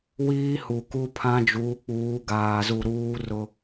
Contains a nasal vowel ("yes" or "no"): yes